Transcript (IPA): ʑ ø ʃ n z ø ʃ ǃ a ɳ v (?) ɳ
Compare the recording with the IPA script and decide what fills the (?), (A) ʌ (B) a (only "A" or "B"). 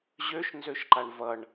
A